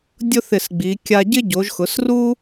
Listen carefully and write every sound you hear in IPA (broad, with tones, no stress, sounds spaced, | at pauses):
dʲ ʊ˥ θ ɪ˧˩ s ɡ͡b i˩˧ kʲ a˧ ɟ ɪ˥ ɟ o˩˧ ʒ x ʊ˩˧ s r u˥